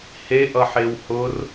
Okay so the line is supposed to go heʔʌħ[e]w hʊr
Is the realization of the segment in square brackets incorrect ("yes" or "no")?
no